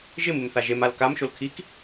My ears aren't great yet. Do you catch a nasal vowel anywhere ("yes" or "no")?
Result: no